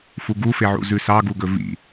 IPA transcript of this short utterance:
f u ɡ u f e ʕ ṵ z ʉ s ɑ ɡ u ɡ ɵ v ḭ

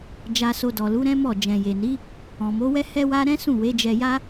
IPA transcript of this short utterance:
d͡ʒ a˨ s o˨ d ɔ˨ l u˨˦ ɾ ɛ̃˦ m ɔ˦˨ d͡ʒ ɛ̃˨ j e˨ n i˨˦ | ɔ̃˨ m o˨˦ w ɛ˦ h ɛ˧ w a˦ ɾ ɛ̃˦ s ũ˦˨ w e˨˦ d͡ʒ ɛ˧ j a˦

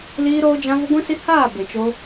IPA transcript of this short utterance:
l iː˧ ɾ oː˧ d͡ʒ ã˧ v ə˧ ɡʷ ĩ˧ s i˧ h aː˦˨ b e˨ t͡ʃ o˧

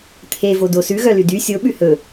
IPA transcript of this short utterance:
t̪ʰ e v o d o s ʉ ɣ œ l y d y sʲ o ɓ ʉ h ɵ

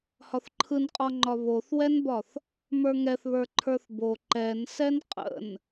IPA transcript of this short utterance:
h ɒ θ ǃʰ ɯ n qʼ ɒ ŋ͡ǃ ɒ β o θ w ɛ n b ɒ θ | m ə˞ ŋ ɛ θ β ə˞ ǃʰ ə˞ θ b o ǃ ɛ n s ɛ n qʼ ə̰ n

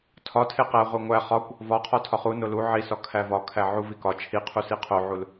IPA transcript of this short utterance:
tʰ ɒ tʰ e q æ ʁʷ e ŋʷ æ χ ɒ kʷ | v ɒ qʰ ɒ tʰ ɒ χ u n o l u ʕ i s ɒ kʰ æ v ɒ kʰ æ ʕ u v i k ɒ t͡ʃʰ i qʰ u s i qʰ o ʕ u l

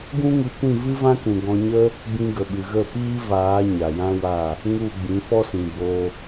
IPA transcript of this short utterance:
ɡ ũ˦ ŋ ɨ˧ kʷ ĩ˦˨ v ɨ˦ v ã˦ k ũ˨ ɡ ɔ̃˧ ɲ ə˦ | b ĩ˧ ɡ ə˨ ɓ ɨ˨ ɣ ə˦˨ p iː˦ v aː˨˦ ɲ a˨ j ã˦ w a˦˨ | ŋ u˦˨ ɡ͡b ĩ˨˦ f ɔ˦ s ĩ˨ b o˧

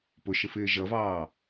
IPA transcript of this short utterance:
p ʊ ʃ ɪ f ɪː ʒ ʌ v ɑː

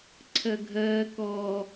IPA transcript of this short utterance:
ǀʰ ɜ ɡʱ ɜː k ɔː

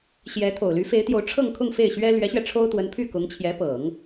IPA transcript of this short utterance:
ɕ j ɛ˧˥ t̪ʰ o˨˩ ʊ̯ l y˧˥ f e˧˥ ɪ̯ t̪ j o˧˥ ʊ̯ ʈ͡ʂʰ ɤ˥˧ ŋ kʰ ʊ˥˧ ŋ f e˥˩ ɪ̯ ɕ ɥ ɛ˥ l ɥ ɛ˧˥ ɕ ɥ ɛ˧ ʈ͡ʂʰ o˥ ʊ̯ t̪ w ə˧˥ n pʰ y˥˩ k ʊ˧˥ ŋ t͡ɕʰ j ɛ˧˥ p ɤ˨˩˦ ŋ

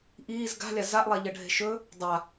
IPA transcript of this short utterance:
ʔ iː z ɡ a̤ lʲ a z a ʔ lˠ a ʎ ɐ ɖʱ e̤ ʃ ɵ | dˤ a

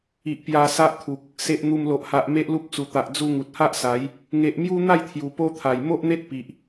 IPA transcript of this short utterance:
i˨ ʔ p j a˧ s a˦ ʔ t̪ʰ u˨ k̚ | s e˨ ʔ n̪ u˨˩ m l o˨ ʔ h a˨ ʔ m e˦ ʔ l u˦ p̚ t͡s u˨˩ t̪ a˨ ʔ d͡z u˧ ŋ u˨ t̚ h a˦ ʔ s a˨˦ j | ŋ e˨ ʔ m j u˦ n̪ a˥˧ j t̪ʰ j u˨˩ p o˦ t̪ʰ a˨˩ j m o˦ ʔ n̪ e˦ t̚ p i˨ ʔ

